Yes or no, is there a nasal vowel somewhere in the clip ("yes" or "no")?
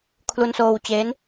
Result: no